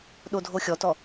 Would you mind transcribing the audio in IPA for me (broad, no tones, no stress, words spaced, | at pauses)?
ɗodʱoxʲɔtɔ